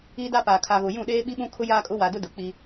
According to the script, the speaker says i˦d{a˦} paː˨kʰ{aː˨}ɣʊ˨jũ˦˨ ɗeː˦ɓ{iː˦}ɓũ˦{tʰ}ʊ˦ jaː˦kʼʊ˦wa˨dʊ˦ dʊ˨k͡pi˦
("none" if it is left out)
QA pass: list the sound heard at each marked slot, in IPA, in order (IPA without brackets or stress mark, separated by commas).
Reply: a˦, a˨, i˦, kʰ